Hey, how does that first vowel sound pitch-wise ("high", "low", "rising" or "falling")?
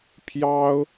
high